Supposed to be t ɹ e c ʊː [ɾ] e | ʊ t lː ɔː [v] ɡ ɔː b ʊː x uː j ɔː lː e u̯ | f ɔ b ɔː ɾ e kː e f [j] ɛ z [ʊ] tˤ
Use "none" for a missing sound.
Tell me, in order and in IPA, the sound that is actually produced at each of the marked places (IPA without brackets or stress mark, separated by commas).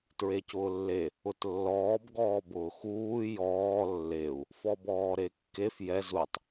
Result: lː, b, j, u